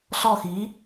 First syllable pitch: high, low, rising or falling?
falling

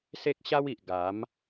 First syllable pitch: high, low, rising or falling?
high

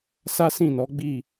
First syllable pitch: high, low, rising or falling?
high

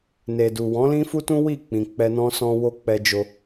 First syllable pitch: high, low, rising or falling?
low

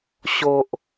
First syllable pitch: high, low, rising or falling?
low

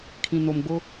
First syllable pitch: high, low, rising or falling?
low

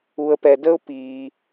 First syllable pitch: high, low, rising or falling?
low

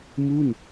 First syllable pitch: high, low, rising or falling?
falling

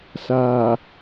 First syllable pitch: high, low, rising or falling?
low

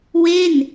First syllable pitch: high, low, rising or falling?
falling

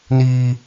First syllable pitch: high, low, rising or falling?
high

